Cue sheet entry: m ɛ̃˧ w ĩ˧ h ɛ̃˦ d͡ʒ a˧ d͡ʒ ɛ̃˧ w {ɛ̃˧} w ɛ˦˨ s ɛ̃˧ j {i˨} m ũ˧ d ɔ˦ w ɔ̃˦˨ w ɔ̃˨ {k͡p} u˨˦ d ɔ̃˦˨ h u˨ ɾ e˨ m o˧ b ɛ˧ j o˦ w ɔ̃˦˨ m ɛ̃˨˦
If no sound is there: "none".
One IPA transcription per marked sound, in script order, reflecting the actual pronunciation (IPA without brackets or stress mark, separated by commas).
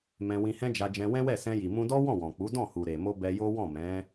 ɛ̃˦, i˨, k͡p